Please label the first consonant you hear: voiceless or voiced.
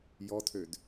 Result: voiced